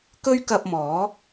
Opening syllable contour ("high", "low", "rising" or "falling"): high